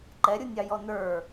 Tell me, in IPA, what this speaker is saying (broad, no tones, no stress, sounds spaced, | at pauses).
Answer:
ǃ ɛ ɾʲ u nʲ ɑ j ɔ n ə˞